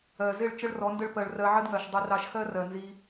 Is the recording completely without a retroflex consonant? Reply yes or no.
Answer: no